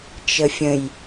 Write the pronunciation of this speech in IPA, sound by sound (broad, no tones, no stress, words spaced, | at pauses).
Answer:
t͡ʃəfʲə̃j